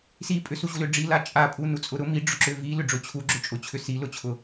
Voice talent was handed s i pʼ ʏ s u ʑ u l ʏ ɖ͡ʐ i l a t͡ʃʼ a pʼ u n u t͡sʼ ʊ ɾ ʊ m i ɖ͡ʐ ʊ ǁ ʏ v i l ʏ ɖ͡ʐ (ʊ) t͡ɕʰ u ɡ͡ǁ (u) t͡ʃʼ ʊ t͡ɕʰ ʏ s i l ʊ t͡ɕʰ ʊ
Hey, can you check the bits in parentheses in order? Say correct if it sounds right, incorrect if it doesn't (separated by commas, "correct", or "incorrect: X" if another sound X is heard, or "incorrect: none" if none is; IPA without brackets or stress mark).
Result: correct, incorrect: ʏ